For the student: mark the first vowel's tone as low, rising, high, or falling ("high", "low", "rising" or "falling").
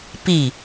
falling